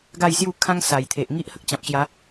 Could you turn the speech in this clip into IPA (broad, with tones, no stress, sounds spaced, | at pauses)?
ɡ a˥˧ j s j u˥˧ kʰ ã˦ ŋ s a˨˩ j t̪ʰ e˨ ʔ ŋ i˦ ʔ h ə˦ k̚ t͡ɕ ã˨ p̚ ɕ j a˨˦